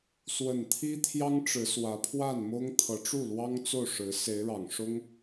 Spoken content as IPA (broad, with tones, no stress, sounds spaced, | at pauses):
s w ə˥˩ n t̪ʰ i˥ t̪ʰ j ɑ˥ ŋ ʈ͡ʂ ɻ̩˧˥ s w ä˧˥ pʰ w a˥˩ n m ʊ˥ ŋ t̪ʰ ɤ˧˥ ʈ͡ʂ u˥˩ l w ɑ˥ ŋ t͡s o˥˩ ʊ̯ ʂ ɻ̩˧˥ s e˧˥ ɪ̯ ɻ ɑ˨˩ ŋ ʂ ʊ˥ ŋ